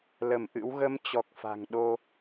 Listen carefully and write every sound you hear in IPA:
l ə˧˩ m ʔ ɨ̰˧˥ w ɣ ə˧ m t͡ɕ ɔ˨˩ k̚ f a̤˨˩ ŋ ɗ o˧

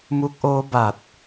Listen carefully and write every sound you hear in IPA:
m u˦˥ k̚ ʔ oː˦˥ b a˨˩ t̚

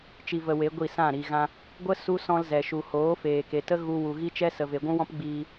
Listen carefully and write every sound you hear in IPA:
t͡ʃ i˧ v ə˧ w e˨˦ ɡʷ i˦˨ s ã˦˨ ɾ i˨ ɣ ã˧ | ɡʷ ə˦ s u˦ s ɔ̃˧ l z ɛ˨ ʃ u˨ h oː˨˦ f eː˨ k e˨ t ə˦ ɣ u˧ w u˨ ɣ i˦ t͡ʃ ɛ˦ s ə˨ v e˨ ɡʷ ũ˦ w ɔ̃˦ p ɡ͡b iː˧

